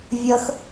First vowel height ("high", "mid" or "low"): mid